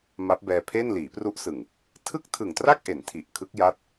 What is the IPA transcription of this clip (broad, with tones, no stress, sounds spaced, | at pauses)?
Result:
m a˦˥ p̚ b ɛː˧ pʰ e˥˩ n l iː˩˦ p r u˦˥ ʔ s ɯ˨˩ ŋ | tʰ ɯ˥˩ k̚ tʰ ɯ˨˩ ŋ t r a˥˩ k̚ ʔ e˩˦ n tʰ i˨˩ ʔ kʰ ɯ˦˥ k̚ j a˦˥ t̚